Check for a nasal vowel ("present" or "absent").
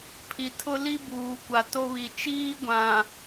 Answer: present